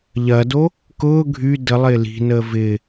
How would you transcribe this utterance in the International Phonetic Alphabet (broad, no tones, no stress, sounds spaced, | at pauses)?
ʎ ɐ d o | k ʊː ɡʱ y d ə lˠ ɪː l i̤ n əː v ɪː